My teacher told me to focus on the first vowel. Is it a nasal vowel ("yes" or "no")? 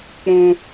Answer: yes